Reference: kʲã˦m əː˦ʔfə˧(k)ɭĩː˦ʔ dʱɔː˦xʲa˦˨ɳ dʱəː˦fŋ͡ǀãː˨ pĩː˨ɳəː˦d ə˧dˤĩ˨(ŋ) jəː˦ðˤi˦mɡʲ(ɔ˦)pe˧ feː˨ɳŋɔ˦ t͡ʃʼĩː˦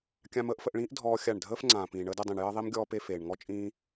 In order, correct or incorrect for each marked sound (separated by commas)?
incorrect, incorrect, incorrect